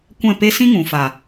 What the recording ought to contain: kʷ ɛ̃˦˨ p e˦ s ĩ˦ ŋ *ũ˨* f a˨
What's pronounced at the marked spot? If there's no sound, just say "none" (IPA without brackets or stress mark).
ũ˨